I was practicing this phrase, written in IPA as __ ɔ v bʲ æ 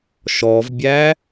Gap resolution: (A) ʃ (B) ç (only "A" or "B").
A